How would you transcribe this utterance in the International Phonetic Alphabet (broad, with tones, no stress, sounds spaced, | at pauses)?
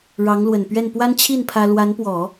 ɻ ɑ˧˥ ŋ l w ə˨˩ n p ɥ ɛ˥˩ n p w a˥ n t͡ɕʰ i˥˩ n pʰ ä˥ l w a˧˥ n p w ɔ˨˩˦